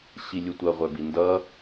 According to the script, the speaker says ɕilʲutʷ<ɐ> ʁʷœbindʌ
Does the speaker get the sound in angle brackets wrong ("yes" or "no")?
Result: no